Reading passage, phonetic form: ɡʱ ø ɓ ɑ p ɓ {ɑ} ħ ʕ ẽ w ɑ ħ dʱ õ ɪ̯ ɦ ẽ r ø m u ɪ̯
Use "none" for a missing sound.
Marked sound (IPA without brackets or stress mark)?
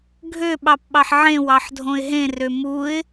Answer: ɑ